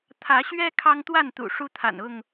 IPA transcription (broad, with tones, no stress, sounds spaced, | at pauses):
t̪ʰ ä˨˦ ɕ ɥ ɛ˦ kʰ ɑ˦ ŋ t̪ w a˥˨ n t̪ ṵ˨˩ ʂ u˦ t̪ʰ a̰˨˩ n ʊ˥˨ ŋ